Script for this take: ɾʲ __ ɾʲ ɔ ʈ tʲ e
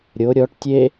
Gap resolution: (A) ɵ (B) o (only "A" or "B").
B